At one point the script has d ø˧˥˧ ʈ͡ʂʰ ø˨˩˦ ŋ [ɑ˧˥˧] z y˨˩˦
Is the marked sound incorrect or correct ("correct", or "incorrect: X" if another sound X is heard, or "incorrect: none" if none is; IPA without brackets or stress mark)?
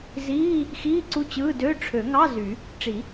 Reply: correct